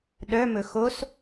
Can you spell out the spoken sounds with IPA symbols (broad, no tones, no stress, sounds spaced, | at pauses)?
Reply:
ɗ œ m ɵ x o s